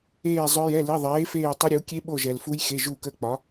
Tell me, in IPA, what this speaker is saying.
eː˦˨ zˤœ˦˥jɛ˧˥˧li˧˥˧ ðˤeː˨˥feː˦˨ tˤə˦˥ɾʲu˨˥ kʲe˦˥ ɓo˦˨ʒɛ˨lfu˦˥j xe˧˥˧ ʒuː˦˨kəː˦˨k͡pɒ˨˥

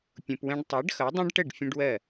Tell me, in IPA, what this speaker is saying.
pʲũ˧pwɛ̃˦ɖ tˤɜ˨˦ɖxʌ˨˦dˤɛ̃˦ɖʈə˦˨ɖ fʲə̃˦ɖwɜ˦˨

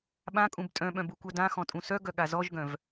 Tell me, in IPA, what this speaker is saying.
ɓãkʼũb tʼœ̃ɓœ̃b ukʷœdãxɔ̃ tʼũsœɡœ ɠazɔʒɡœ̃v

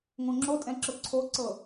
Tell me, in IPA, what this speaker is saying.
ŋõŋ͡ǁotʼɛ̃ ǁʊǀʰoǀɤ

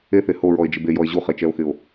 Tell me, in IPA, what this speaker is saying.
eθe hoɹɔe̯d͡ʒɪ bejɔe̯ ʑuχet͡ʃɛo̯xɪo̯

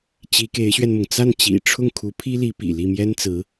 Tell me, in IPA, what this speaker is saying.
t͡ɕi˧˥ke˧˥ɪ̯ɕɥɛ˧nmʊ˩ŋ t͡sa˥˩nt͡ɕḭ˨˩ʈ͡ʂʰʊ˥˩ŋkʰu˧˥ pʰi˥li˧˥pḭ˨˩ li˥˩mjɛ˥nt͡sɹ̩˧˥

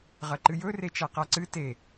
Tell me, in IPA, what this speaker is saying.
ʁɐǃɨjɵ ret͡ʃaqaǀɨ te

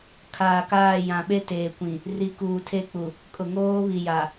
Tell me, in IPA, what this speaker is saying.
kʰaː˨kaː˦˨ jã˨ɓe˦teː˨kʷĩ˨ | ri˨kuː˨tʰe˦k͡pu˨ | kʼʊ˨ŋoː˦βi˨ja˨

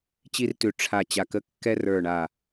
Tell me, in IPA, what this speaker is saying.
t͡ɕi˧rtʉ˨˩ ʈ͡ʂʰa˨˩ t͡ɕa˨˩kə˧ kːɛ˧rə˞˨˩ɳa˨˩

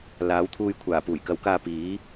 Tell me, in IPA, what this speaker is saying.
laː˨˥wt̪ʰuː˧j kʷʰaː˨˩puː˨˩jkɐ˨˥wkaː˧ piː˨˥

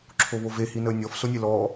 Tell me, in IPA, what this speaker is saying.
ǁʰoβove hinəːnʲɔf sonʲelɔː

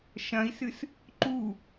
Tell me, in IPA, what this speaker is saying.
ʃɐ̃i̯sɨs | ǃu

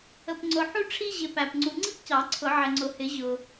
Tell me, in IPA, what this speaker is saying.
ə˨pŋ͡ǀʊ˨ħu˥ ʈ͡ʂʰi˥ʑɪ˨ pæ˨p ŋ͡ǀu˨ŋ͡ǀi˥p cɑ˨˩˦ǀʰʊ˨˩˦ʕɪ˨ ŋ͡ǀʊ˨hɪ˨˩˦ ʑʊ˨

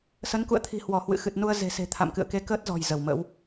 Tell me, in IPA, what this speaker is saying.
sə˨˦nkṵ˧˨ə̯t̪ʰi̤˨˩hwɔ˧˩ hwɨ̰˧˨ xɨ˨˩t̚nu˧ə̯ ze̤˨˩se̤˨˩ t̪ʰa̰˧˨mkɨ̰˧˨ə̯ke˧ kəː˦˥t̚zɔ̤˨˩j zə˧˩wmə̰˧˥w

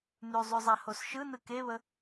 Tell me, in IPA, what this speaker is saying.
nʉzˤʉzˤa hosʃɯ nɯkeβə

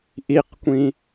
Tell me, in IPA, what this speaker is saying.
ʔiqkʷĩ

